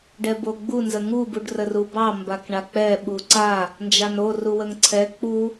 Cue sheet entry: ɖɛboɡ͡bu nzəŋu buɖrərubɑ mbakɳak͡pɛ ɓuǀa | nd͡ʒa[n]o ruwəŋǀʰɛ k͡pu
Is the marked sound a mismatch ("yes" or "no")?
no